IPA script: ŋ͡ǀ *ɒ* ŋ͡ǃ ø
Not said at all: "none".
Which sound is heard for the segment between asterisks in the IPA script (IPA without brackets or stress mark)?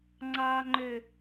ɑ